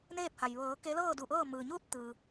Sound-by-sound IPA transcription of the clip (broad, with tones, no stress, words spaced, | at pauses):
neː˥˨p̚ha˩j ʋɤː˩˧ ke˧˥lɤː˥˨du˧˩ʔɤː˥˨ mɯː˩ɲuː˥˨t̚ t̪ɯː˩